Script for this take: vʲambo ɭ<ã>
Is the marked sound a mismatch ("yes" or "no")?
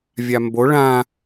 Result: no